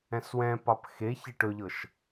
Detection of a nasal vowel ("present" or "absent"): present